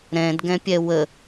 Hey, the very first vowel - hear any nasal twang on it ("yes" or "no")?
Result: yes